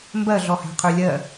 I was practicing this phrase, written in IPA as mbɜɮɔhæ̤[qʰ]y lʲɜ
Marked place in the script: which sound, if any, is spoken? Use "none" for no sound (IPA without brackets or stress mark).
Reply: qʰ